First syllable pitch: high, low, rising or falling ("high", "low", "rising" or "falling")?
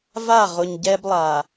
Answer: falling